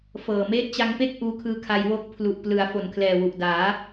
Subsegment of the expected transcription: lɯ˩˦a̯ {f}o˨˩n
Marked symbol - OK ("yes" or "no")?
yes